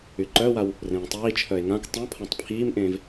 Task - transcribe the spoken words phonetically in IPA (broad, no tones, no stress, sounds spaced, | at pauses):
y ǃ œ w a w | r ẽː tˤ iː t͡ʃʰ œ e̯ ŋ ã k tˤ õ pʰ ã tˤ pʰ iː m ʔ ẽː v